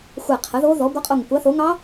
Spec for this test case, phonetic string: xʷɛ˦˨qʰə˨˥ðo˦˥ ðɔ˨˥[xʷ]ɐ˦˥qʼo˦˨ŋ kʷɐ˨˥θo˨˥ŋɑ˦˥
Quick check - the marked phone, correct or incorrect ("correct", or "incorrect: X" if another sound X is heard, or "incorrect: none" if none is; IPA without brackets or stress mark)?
incorrect: ɡʷ